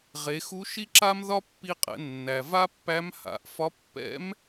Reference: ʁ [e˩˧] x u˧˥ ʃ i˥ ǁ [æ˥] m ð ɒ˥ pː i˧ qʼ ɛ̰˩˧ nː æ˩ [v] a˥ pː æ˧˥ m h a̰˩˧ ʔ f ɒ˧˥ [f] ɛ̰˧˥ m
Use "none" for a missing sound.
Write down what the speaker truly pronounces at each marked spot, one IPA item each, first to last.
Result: e˩˧, a˥, v, pː

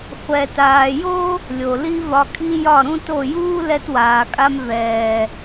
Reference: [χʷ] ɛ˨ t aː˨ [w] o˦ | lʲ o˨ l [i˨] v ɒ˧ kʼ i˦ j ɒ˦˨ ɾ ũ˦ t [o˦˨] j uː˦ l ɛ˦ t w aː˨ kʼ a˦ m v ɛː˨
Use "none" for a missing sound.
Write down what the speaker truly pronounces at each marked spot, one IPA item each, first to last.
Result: χʷ, j, i˦, o˦˨

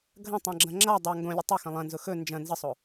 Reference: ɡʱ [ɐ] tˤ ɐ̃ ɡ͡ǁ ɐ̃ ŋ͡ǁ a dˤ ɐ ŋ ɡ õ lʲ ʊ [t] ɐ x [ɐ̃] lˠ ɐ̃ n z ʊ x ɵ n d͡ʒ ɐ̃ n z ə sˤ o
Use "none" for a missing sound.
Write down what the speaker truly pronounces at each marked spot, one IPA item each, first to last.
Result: ɐ̃, tˤ, ɐ̃

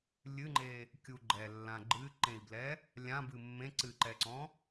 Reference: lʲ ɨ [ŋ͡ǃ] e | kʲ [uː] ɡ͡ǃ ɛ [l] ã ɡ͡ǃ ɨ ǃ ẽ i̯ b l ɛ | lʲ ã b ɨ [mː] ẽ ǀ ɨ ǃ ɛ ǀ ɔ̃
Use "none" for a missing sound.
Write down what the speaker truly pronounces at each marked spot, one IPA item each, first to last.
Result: ŋ͡ǃ, u, lː, mː

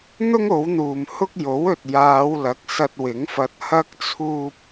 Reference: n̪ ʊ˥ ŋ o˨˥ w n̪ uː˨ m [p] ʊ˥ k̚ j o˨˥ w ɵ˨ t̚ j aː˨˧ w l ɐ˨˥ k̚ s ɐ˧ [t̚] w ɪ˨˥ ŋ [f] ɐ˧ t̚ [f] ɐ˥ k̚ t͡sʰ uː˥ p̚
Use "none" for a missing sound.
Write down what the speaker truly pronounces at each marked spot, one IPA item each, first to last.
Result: h, t̚, f, h

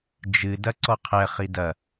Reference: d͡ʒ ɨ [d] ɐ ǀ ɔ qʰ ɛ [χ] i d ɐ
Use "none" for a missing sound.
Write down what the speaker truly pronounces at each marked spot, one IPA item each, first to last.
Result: d, χ

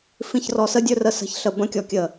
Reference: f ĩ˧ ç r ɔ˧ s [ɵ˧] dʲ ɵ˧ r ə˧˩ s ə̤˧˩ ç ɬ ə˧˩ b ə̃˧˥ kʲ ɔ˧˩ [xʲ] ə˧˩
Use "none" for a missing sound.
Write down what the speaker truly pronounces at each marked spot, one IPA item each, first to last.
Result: ə˧, kʲ

